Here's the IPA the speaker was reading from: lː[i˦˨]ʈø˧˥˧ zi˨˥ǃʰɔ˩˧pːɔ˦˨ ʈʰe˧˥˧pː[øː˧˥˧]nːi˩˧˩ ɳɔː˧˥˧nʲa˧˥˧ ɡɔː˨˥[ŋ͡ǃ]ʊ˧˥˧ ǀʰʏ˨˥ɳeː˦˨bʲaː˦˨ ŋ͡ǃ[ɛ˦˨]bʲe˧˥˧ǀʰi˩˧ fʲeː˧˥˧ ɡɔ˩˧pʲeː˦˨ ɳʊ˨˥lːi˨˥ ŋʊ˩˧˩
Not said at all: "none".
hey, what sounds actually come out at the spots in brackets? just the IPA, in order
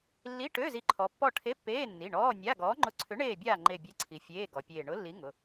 i˧˥˧, eː˧˥˧, ŋ͡ǃ, e˦˨

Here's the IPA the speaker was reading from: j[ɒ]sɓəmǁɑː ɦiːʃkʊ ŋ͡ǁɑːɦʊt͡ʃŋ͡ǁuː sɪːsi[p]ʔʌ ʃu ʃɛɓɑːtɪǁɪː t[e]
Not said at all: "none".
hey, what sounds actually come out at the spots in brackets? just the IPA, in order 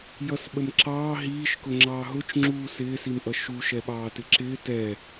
ʌ, m, ɛ

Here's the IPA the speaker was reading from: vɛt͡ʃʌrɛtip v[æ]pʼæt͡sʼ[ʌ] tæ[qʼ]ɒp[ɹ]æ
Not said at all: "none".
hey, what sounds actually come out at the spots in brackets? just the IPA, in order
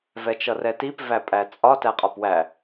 æ, ɒ, qʼ, w

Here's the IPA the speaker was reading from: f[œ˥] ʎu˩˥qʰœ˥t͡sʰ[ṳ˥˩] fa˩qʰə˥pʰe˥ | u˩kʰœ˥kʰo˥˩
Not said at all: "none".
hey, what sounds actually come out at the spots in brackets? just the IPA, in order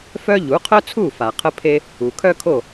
œ˥, u˥˩

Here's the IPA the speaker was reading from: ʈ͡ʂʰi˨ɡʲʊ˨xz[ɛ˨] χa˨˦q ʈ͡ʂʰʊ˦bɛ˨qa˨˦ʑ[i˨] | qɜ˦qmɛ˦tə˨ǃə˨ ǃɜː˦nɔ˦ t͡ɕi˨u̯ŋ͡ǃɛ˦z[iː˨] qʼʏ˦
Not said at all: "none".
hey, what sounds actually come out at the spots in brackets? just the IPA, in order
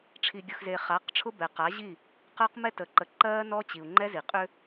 e˨, i˦˨, i˨

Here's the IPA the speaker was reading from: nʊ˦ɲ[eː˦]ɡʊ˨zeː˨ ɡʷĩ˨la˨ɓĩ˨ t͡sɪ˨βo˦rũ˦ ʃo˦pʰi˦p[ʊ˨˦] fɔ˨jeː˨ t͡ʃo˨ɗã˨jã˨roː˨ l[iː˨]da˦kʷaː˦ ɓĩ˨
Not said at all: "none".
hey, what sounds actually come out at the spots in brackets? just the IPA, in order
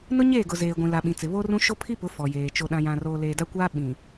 eː˦˨, ʊ˨˦, eː˨

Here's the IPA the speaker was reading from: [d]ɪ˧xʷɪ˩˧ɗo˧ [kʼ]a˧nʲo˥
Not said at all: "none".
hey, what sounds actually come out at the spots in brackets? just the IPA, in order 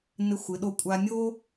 n, kʷʼ

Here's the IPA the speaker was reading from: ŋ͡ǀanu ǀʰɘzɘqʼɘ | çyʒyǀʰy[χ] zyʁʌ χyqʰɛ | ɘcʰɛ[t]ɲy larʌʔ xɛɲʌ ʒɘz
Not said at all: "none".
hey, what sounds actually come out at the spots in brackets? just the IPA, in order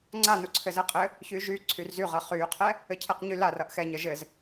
r, q

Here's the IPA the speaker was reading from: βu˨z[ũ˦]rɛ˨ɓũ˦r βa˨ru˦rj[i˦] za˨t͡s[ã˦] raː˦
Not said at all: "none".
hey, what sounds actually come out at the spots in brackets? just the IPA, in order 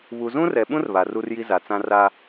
ũ˦, i˦, ã˦

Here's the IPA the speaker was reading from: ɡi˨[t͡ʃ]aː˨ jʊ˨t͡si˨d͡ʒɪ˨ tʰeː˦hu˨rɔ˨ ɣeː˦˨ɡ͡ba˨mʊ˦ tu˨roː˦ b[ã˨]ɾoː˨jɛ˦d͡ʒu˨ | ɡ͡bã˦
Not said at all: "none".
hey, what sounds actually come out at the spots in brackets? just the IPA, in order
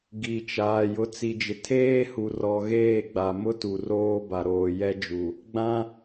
t͡ʃ, a˨

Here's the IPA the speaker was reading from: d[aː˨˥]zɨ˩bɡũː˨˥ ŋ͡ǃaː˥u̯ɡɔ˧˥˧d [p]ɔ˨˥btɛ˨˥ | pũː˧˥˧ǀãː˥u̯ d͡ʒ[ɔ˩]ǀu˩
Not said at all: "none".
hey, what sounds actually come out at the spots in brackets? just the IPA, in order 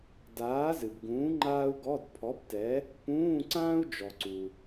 aː˨˥, pʰ, ɔ˩

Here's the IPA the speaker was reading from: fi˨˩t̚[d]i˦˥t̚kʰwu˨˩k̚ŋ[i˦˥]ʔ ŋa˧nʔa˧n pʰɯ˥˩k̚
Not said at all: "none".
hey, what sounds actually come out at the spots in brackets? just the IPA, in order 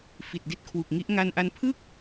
d, i˦˥

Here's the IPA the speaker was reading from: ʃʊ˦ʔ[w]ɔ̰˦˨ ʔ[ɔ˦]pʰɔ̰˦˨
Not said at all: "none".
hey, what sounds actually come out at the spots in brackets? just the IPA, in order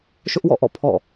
w, ɔ̰˦˨

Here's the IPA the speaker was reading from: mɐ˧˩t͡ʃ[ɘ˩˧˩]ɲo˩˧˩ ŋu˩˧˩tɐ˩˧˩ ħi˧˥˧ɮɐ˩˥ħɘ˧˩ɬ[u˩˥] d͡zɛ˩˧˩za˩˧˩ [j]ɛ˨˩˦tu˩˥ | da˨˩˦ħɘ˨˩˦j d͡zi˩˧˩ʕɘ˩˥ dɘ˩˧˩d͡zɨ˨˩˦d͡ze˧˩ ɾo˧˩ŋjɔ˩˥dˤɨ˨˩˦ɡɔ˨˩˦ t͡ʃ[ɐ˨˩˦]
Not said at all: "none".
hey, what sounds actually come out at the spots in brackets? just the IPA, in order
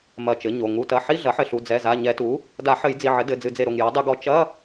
ɘ˩˥, u˩˧˩, ɲ, ɐ˧˥˧

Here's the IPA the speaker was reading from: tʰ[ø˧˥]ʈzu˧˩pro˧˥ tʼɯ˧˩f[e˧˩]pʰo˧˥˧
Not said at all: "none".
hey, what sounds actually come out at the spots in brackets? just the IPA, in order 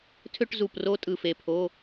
ø˥˧, e˧˩

